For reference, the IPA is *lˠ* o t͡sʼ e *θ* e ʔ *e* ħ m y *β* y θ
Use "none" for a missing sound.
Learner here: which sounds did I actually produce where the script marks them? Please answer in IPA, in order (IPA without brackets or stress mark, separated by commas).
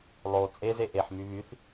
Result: lˠ, z, e, β